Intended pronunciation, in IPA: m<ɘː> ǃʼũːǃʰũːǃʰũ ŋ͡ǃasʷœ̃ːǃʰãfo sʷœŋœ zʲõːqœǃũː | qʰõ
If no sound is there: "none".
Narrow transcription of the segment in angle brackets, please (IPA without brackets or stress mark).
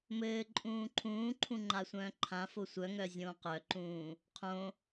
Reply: ɘː